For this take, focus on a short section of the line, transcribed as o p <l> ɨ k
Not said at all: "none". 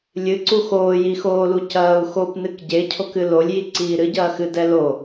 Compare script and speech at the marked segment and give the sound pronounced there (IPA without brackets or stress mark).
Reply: n